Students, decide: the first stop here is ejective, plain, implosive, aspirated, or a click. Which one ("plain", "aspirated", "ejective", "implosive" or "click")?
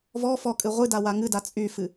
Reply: ejective